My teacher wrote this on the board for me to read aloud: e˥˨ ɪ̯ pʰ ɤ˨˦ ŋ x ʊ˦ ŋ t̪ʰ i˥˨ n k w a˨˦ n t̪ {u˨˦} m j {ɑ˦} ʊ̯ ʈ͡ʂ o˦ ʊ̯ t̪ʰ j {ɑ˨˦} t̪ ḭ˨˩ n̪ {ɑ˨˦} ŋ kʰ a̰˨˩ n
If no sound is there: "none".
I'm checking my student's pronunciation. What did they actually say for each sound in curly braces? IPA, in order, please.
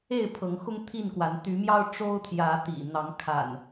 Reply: y˨˦, ɑ˦, ä˨˦, ɑ˨˦

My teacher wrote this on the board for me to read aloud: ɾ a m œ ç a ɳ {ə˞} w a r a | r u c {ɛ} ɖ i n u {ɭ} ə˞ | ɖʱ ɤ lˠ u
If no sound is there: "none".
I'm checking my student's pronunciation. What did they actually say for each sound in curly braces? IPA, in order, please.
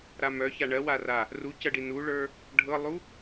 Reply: ɜ, ɜ, ɭ

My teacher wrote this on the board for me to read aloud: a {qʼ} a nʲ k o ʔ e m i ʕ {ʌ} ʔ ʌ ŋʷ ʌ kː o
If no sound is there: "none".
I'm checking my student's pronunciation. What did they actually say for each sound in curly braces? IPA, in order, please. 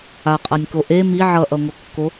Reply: qʼ, ʌ

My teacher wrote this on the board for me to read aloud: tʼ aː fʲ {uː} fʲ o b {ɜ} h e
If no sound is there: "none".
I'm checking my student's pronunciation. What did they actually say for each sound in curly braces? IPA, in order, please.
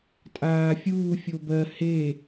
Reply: uː, ɜ

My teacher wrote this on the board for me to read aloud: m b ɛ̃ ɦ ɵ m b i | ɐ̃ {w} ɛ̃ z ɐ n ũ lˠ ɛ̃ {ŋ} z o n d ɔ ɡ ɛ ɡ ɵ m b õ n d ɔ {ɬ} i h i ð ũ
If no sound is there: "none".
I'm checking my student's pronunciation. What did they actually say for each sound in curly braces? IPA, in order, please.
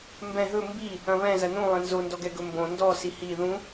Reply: β, n, s

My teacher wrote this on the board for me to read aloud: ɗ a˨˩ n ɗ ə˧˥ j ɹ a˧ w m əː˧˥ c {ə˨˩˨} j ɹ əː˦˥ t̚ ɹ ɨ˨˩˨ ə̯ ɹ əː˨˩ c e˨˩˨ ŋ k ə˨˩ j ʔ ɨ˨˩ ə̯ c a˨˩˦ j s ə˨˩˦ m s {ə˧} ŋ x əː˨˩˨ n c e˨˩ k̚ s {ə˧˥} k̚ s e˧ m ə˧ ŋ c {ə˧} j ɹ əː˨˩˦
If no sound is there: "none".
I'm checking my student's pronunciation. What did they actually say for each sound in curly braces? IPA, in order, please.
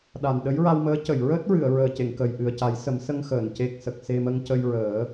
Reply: ə˨˩˨, ə˧, ə˨˩, ə˧

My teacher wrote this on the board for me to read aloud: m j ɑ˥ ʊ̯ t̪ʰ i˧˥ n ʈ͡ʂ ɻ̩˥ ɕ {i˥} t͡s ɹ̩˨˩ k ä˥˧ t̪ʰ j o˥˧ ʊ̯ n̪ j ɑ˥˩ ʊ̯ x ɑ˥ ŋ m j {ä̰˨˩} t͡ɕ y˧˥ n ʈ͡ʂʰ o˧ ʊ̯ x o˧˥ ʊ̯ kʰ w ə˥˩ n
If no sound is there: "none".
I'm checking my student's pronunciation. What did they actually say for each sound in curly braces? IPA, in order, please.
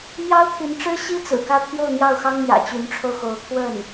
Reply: i˥, ä̰˨˩

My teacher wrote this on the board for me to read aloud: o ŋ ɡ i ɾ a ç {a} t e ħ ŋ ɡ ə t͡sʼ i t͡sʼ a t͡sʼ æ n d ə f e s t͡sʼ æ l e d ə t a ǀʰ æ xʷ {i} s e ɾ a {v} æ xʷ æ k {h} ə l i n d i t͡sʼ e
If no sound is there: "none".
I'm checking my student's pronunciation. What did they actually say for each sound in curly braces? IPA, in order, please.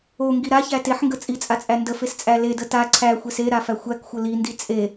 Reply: æ, e, f, xʷ

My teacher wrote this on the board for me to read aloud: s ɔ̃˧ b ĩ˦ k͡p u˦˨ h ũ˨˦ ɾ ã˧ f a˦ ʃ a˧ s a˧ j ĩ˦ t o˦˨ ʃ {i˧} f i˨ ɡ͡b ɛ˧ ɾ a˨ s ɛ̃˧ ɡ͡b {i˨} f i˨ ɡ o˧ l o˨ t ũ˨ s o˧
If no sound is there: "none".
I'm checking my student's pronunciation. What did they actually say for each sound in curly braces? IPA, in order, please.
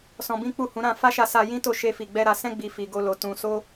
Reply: e˧, i˨

